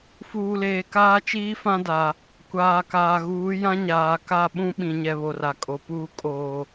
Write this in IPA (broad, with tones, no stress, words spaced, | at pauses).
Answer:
fuː˨leː˨ kaː˦t͡ʃiː˦ fã˦da˨ | kʷaː˨kaː˨ ɣuː˨˦ jã˦ɲaː˨ka˦˨ɓũ˦ ɓĩ˨ɲɛ˨ βo˨ra˨kʼo˨puː˦ kʼoː˨